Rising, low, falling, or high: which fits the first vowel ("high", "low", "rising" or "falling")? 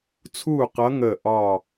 falling